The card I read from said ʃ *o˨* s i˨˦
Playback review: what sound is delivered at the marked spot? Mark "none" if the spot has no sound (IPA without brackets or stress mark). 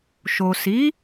o˨